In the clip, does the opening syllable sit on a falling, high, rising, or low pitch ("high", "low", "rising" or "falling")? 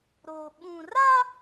low